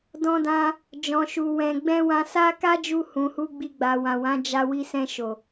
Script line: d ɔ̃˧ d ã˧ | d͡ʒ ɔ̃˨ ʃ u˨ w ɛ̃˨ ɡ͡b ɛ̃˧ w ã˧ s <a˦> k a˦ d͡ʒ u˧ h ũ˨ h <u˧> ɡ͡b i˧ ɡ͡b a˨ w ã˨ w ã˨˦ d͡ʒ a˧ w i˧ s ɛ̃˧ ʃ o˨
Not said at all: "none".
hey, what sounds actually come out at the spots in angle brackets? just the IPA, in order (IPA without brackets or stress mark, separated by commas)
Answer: a˦, u˧